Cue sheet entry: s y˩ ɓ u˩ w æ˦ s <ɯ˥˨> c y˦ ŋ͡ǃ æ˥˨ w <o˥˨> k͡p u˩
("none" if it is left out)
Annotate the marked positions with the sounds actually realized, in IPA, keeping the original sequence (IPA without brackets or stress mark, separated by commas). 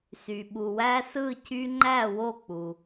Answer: ɯ˥˨, o˥˨